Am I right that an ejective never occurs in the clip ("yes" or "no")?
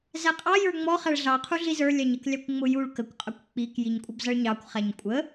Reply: no